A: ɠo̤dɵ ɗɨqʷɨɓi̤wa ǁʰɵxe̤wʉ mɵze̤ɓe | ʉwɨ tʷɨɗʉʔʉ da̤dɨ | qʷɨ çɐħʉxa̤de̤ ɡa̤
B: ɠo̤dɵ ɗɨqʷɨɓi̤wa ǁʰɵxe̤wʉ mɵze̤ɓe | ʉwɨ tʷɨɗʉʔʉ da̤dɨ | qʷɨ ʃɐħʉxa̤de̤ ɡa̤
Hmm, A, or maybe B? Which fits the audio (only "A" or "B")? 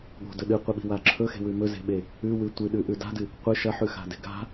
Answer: B